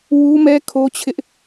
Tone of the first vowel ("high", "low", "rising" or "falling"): high